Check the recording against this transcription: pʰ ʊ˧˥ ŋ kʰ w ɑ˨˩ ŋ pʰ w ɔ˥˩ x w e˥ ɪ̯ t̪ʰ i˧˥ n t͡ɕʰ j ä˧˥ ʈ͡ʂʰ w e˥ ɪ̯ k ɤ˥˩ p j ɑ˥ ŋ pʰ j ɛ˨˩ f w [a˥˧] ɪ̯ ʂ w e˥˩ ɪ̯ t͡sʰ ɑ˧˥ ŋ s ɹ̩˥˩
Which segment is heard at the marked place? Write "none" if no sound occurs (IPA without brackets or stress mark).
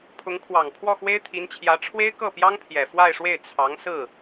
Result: a˥˧